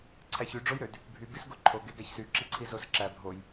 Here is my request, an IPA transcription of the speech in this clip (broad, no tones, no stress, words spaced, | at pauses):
ǀʰæçy ɖ͡ʐojɾød | bʱy bisɡoǃʰo ɡeɡæçsy ǁiǀʰizosǁæ bʱoj